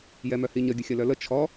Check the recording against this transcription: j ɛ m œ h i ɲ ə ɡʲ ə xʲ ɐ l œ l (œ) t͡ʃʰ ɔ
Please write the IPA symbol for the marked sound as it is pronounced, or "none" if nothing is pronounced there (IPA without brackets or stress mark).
ə